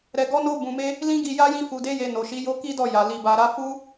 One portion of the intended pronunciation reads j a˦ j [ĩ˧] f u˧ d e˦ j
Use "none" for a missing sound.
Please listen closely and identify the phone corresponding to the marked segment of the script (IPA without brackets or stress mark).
ĩ˦